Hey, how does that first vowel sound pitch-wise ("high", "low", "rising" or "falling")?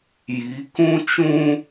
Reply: rising